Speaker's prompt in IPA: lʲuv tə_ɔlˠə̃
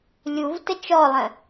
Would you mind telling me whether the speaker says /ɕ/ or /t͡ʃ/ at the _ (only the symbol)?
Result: t͡ʃ